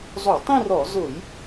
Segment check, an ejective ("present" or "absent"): absent